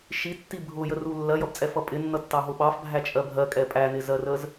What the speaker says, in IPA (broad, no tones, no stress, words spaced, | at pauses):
ʃitːi bʱʊjəru lːɜjʌbt͡sʼɛfʌ pʼɪnːʌtːɑɦʊ ɓɑfbʱæt͡ʃʼɜ bʱɜkʼɛ pʼænɪzɜrəz